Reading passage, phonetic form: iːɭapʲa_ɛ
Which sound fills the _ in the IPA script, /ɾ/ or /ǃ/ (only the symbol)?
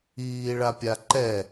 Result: ǃ